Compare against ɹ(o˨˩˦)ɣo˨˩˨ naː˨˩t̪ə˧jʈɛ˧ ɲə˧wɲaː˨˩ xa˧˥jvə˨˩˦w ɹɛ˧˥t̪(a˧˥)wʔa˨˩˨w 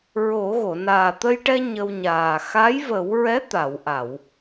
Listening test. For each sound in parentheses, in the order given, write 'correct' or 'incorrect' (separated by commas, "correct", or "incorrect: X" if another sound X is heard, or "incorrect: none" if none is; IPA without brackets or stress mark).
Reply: correct, incorrect: a˨˩˨